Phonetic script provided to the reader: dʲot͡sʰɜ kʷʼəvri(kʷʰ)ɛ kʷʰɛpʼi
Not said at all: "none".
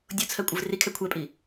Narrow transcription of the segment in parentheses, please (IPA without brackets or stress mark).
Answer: kʰ